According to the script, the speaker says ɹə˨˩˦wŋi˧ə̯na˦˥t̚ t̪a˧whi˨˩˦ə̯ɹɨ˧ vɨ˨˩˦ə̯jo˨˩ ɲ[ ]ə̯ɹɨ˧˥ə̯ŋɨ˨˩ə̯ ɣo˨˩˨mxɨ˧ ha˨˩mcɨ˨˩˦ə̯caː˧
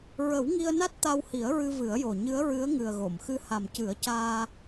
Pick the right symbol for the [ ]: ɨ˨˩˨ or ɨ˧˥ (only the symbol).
ɨ˧˥